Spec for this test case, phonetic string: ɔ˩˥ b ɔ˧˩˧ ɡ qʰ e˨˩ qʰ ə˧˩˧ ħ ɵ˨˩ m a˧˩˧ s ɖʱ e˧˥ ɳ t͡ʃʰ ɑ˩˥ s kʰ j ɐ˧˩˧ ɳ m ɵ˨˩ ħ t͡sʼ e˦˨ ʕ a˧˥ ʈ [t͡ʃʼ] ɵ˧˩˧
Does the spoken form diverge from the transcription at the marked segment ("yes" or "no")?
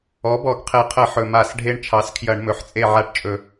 no